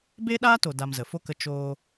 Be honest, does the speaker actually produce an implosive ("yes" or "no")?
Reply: yes